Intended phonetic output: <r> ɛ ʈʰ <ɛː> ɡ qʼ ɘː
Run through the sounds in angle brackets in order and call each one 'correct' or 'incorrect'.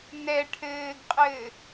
incorrect: n, incorrect: ɘː

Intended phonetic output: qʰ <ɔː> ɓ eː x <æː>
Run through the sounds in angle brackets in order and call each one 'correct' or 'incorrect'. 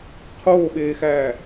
incorrect: oː, correct

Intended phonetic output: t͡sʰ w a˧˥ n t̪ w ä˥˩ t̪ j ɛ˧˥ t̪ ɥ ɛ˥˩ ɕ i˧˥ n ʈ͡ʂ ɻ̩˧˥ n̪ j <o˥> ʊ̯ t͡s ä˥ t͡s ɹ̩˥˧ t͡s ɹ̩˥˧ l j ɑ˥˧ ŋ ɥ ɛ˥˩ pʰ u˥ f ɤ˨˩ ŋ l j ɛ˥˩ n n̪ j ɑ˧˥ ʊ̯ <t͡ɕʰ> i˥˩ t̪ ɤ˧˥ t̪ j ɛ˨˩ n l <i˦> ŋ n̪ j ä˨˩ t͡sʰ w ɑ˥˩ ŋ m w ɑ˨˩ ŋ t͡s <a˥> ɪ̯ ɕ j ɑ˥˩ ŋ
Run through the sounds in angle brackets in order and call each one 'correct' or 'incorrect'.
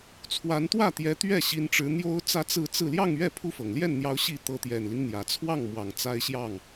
correct, incorrect: ɕ, correct, correct

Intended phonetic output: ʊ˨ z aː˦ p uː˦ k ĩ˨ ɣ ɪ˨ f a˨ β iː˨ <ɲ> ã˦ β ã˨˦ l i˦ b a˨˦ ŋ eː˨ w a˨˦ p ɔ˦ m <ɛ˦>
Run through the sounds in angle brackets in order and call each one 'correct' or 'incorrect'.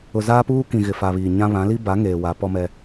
correct, correct

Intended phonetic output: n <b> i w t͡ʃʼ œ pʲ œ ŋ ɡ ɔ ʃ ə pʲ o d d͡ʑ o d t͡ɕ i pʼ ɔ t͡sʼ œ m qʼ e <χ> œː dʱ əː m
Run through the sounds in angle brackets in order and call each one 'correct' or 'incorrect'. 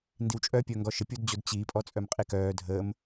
incorrect: d, incorrect: k

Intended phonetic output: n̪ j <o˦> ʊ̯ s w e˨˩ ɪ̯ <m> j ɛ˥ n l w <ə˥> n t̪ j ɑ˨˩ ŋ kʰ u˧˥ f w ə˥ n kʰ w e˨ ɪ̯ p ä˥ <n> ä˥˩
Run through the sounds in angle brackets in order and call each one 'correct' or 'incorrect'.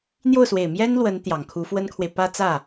incorrect: o˥˩, correct, incorrect: ə˧˥, incorrect: t͡s

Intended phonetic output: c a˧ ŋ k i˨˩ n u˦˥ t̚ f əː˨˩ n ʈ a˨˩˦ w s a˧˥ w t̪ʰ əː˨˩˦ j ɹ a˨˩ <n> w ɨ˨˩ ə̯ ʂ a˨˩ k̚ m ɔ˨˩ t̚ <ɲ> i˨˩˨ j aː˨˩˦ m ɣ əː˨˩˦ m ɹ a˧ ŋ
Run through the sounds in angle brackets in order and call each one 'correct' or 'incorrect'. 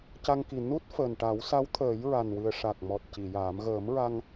correct, incorrect: c

